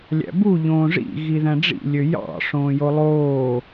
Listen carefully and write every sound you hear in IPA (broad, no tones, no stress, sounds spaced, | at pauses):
lʲ æ̰ b u ʎ õː ʐ ḭ ɣ i ð æ̃ ɖ͡ʐ ḭ lʲ ø j ɑ̰ ʂ õː j o lˠ oː